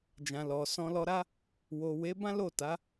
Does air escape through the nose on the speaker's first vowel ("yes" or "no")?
yes